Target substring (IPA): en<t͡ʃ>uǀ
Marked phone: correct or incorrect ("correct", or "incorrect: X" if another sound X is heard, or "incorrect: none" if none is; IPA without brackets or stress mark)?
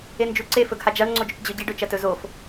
incorrect: d͡ʒ